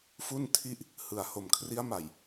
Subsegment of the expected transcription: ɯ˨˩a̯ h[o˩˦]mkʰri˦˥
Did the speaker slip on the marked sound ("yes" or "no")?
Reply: yes